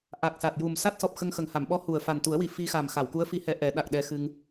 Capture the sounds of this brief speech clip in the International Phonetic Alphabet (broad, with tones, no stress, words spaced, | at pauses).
ʔa˨˩k̚sa˨˩t̚ ju˨˩msa˦˥t̚ sɔ˨˩p̚xə˧ŋxə˨˩ŋha˨˩˨m ɓɔ˧˥ hu˨˩ə̯ fa˨˩n t̪u˨˩˦ə̯wi˨˩ fi˧xa˨˩mxa˨˩˨wku˧˥ə̯ fi˧˥hɛ˧ʔɛ˨˩˦ɗa˨˩k̚ ɗɛ˧xɨ˧ŋ